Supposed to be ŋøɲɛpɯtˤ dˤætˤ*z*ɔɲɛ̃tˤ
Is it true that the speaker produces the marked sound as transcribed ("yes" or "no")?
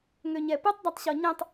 no